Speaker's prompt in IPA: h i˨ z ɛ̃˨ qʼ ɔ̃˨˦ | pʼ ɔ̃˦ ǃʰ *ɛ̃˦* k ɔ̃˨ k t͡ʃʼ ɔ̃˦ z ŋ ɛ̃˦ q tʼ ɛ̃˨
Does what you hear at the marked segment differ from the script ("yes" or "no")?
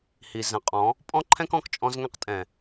no